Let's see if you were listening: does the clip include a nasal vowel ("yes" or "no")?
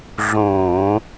yes